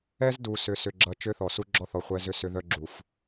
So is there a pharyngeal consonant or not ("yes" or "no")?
no